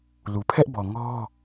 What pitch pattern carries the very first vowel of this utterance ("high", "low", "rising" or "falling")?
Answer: low